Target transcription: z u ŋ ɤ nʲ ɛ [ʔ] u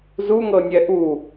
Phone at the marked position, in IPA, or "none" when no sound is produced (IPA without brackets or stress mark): ʔ